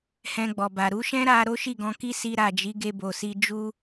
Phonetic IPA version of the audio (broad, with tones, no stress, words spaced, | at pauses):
hɛ̃˧ɡ͡bɔ˨ba˨ ɾu˨˦ʃɛ̃˦ ɾa˧ ɾo˦ʃi˦˨ ɡɔ̃˧ki˦si˧ ɾa˨d͡ʒi˨˦ ɡe˧bo˨si˧ d͡ʒu˦